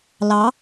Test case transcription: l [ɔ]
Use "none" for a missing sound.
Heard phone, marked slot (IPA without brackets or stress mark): ɑ